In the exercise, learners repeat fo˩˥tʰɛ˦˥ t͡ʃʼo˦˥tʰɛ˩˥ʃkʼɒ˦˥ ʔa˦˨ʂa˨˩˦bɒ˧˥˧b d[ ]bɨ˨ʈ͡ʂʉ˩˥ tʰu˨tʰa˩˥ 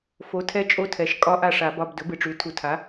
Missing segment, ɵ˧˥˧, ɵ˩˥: ɵ˩˥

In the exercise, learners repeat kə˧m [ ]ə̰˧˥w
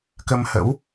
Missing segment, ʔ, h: h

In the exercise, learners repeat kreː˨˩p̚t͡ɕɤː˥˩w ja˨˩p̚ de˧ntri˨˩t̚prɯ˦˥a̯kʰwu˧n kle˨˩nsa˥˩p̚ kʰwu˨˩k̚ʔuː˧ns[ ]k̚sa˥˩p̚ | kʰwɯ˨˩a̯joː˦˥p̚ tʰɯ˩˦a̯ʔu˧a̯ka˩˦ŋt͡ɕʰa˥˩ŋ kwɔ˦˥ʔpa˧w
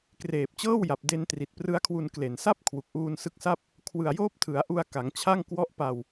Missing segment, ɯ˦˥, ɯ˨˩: ɯ˦˥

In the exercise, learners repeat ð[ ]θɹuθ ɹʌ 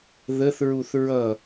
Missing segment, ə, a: ə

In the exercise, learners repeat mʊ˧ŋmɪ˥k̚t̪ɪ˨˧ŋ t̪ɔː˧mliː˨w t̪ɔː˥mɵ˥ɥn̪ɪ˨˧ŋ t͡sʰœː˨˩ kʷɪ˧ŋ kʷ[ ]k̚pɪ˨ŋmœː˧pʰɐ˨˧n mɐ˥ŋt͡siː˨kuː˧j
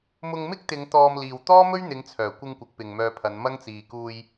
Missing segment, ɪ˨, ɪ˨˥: ɪ˨˥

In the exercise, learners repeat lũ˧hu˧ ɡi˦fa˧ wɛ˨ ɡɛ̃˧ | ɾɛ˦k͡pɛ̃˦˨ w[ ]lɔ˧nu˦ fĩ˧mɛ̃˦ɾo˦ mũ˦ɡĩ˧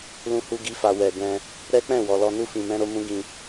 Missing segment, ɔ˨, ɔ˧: ɔ˨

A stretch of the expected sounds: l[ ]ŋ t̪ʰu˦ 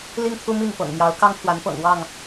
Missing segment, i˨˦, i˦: i˦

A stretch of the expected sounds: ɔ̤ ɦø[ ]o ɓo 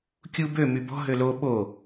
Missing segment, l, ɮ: l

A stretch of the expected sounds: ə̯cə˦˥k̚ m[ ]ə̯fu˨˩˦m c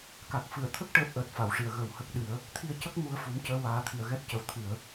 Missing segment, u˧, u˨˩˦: u˧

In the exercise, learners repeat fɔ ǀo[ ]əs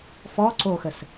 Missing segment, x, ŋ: x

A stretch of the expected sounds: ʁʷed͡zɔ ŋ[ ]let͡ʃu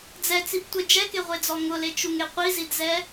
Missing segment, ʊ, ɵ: ʊ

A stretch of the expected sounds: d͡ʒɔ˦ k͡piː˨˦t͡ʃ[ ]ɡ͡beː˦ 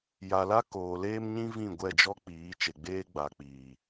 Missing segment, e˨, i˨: e˨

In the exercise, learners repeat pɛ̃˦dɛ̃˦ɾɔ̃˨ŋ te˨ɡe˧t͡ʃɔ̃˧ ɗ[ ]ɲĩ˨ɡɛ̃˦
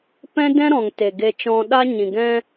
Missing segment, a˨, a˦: a˦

